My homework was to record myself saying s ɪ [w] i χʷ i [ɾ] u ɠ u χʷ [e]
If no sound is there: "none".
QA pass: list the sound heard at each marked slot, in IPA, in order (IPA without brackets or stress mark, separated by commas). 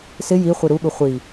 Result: j, ɾ, i